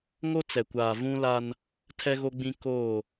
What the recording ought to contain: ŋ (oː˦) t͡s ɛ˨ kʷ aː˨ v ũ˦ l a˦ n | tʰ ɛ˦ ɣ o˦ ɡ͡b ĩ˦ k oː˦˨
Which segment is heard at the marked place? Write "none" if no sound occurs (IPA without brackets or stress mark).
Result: o˦